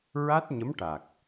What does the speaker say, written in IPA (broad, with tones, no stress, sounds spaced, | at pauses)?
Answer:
ɹ a˦˥ t̚ ɲ ə˧˥ m ʈ a˨˩ k̚